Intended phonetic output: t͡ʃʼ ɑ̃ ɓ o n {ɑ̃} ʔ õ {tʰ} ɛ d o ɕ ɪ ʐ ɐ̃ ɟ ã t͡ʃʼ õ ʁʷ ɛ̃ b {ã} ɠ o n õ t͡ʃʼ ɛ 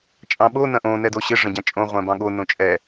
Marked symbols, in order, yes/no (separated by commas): no, no, no